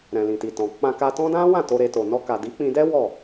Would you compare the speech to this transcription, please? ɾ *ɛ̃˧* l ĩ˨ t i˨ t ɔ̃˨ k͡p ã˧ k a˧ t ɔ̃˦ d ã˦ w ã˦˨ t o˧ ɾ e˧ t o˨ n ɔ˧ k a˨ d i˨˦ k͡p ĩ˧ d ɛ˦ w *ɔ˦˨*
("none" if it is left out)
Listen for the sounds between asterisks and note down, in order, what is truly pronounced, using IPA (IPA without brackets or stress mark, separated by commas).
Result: ɛ̃˨, ɔ˦˨